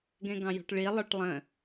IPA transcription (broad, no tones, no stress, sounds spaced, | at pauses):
ɡ ɛ̃ ɡ ɑ̃ j ɔ̤ ʈ ɭ i lˠ ə˞ ʈ lˠ ə̃